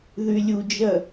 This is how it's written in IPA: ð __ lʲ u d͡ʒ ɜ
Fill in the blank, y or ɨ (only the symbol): y